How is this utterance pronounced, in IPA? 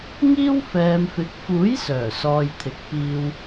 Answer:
ŋ iː˥ w f ɛː˨ m f ɪ˨˥ k̚ f uː˨˥ j s œː˨˩ s ɔː˨ j t̪ʰ ɪ˨ k̚ p iː˨ w

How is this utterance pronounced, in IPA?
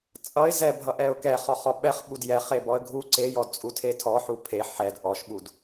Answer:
t͡sʼ ʌ ɪ̯ z ɛ bʱ ʌ ʔ ɛ ʊ̯ k ɛ χ ɔ χ ɔ ɓ ɛ χ ɓ u d j ɛ χ e b ɔ ə̯ ɡʱ u ǀ e j ɔ d t͡sʼ u tʰ e tʰ ɔ ħ u pʰ e ħ ɛ d ʔ ɔ ʃ ɓ u d

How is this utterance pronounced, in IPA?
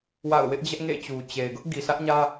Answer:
w a̰˦˨ ʊ̯ w ɪ˦ ʔ d͡ʑ ɛ˦ ʔ ŋ ḛ˦˨ t͡ɕ u˨ t͡ɕ e˨ ɪ̯ ɡ ʊ˦ ʔ ɡ i˨ s ä˦ ʔ ɲ ä˦

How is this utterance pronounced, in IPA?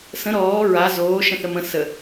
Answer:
s ə̃ ɾ ɔː ɹ a z oː ʃ ə̃ θ ə m ə̃ s ə

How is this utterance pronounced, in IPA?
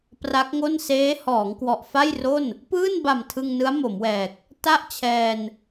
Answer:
p r a˦˥ k̚ ŋ o˥˩ n s eː˦˥ h ɔː˩˦ ŋ k w ɔ˨˩ ʔ f a˥˩ j r o˥˩ n | p ɯː˥˩ n b a˨˩ m tʰ ɯ˧ ŋ n ɯ˦˥ a̯ m o˩˦ m w ɛː˨˩ k̚ | t a˥˩ ʔ t͡ɕʰ ɛː˧ n

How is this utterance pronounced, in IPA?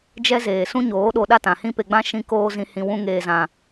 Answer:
d͡ʒ ɛ˦ z eː˨ s ũ˦ ɲ oː˨˦ ɗ o˧ ɗ a˦ t ã˨ h ĩ˦ p e˨ ɡ͡b ã˧ ʃ ĩ˧ k oː˧ z ĩ˨ h ĩ˨ w ũ˧ ŋ eː˨ z ã˨

